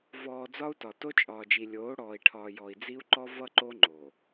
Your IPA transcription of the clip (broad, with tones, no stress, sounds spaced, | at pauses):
v ɔː˨ d͡z ɒ˦ u̯ t ɒ˨ t o˦ t͡ʃʼ ɒː˨ d͡ʒ i˨ lʲ oː˨˦ ɽ ɔː˨ i̯ ʈʰ ɒː˨ j ɔ˨ i̯ d͡z i˦ u̯ ǃ ɔ˦ v ʌ˦ ǃ o˦ ŋ͡ǃ o˨